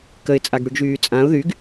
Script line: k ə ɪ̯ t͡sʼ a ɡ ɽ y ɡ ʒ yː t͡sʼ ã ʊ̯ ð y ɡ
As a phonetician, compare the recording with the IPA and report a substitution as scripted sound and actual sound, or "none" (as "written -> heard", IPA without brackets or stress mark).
none